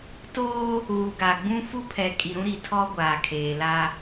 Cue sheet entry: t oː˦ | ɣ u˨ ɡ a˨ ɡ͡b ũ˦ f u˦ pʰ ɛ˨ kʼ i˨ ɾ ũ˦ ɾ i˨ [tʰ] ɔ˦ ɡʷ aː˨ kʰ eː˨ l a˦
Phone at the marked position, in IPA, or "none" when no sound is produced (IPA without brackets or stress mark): tʰ